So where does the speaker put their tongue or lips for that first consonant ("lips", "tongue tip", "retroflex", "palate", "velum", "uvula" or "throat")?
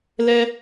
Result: tongue tip